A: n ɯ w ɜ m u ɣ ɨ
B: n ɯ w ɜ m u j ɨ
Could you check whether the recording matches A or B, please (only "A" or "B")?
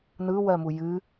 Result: B